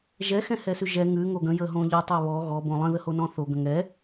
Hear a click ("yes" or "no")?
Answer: no